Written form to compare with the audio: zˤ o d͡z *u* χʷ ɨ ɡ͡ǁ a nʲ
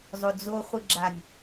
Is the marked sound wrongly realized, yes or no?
yes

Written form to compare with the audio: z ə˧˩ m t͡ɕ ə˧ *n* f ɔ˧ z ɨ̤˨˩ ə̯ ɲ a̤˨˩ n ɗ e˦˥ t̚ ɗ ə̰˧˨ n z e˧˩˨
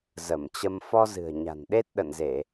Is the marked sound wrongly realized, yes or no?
yes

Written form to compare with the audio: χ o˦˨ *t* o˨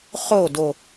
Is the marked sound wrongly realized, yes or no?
yes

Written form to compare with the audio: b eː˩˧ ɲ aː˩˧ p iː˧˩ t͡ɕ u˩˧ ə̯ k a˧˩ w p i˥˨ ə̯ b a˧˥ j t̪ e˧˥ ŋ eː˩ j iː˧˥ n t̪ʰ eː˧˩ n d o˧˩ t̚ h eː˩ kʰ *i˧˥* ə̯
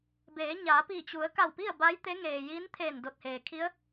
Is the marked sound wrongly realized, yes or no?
no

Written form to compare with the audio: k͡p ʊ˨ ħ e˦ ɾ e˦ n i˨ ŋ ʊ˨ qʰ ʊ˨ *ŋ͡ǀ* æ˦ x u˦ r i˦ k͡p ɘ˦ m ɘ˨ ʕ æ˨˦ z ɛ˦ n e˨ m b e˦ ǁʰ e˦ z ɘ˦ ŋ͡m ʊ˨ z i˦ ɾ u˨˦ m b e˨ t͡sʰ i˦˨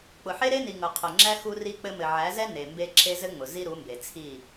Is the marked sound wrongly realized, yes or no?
yes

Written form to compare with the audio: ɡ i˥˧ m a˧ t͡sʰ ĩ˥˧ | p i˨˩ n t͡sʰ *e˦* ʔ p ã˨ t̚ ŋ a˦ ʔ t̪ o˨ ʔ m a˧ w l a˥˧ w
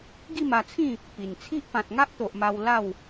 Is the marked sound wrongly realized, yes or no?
yes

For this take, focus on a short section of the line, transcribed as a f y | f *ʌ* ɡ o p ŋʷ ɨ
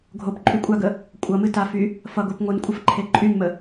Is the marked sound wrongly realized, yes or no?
no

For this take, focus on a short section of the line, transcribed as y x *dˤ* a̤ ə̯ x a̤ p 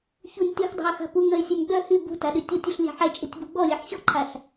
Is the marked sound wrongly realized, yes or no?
no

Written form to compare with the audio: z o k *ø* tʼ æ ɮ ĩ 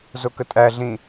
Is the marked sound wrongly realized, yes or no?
yes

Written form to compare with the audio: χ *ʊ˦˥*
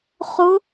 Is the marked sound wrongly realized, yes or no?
no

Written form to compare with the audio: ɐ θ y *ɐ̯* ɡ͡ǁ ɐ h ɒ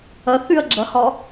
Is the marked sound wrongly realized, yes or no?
no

